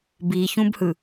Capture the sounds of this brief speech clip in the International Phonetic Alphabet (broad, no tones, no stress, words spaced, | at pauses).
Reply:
biçũbhɯ